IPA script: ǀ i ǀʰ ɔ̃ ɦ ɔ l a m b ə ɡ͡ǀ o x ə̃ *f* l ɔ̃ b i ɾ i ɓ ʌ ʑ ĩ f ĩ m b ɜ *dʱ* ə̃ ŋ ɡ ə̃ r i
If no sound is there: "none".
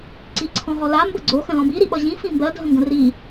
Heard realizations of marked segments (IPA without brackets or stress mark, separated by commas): none, dʱ